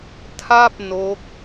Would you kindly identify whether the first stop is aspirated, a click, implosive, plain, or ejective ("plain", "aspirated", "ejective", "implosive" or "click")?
aspirated